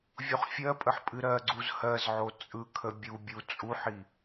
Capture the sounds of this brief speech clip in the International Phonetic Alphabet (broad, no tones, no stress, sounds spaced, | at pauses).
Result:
vʲ o χ fʲ ɜ pʼ ə ħ pʼ ɨ ɾ ɜ ɡ͡ǀ u z h ɜ z ʕ o t͡sʼ ɯ kʰ ə bʲ u bʲ u t͡sʼ u ħ i